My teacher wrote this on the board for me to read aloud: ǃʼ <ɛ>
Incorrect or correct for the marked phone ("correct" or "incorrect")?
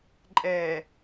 correct